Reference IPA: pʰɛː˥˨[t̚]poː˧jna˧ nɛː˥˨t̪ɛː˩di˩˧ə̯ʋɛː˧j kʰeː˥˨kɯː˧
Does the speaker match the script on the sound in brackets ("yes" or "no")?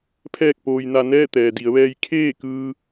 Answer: no